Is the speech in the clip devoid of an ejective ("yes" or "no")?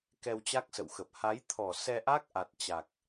yes